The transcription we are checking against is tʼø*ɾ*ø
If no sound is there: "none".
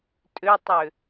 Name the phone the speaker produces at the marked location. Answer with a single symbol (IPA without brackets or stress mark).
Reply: tˤ